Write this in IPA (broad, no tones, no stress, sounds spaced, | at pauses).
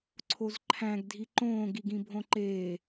ǀʰ o z ǃʰ æ̃ ɡ dʱ i ǃ õː ɡ i ɡ ĩ bʱ õ ǃ eː